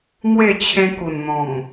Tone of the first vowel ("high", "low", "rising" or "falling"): falling